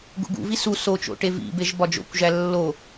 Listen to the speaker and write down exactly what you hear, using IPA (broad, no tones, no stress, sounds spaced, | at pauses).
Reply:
ɡ ṵ ɡ ṵ v i s u s o t͡ʃ o̰ ʈ e v ḭ b e ʒ b ɒ d͡ʒ o̰ kʷ ʒ æ lː o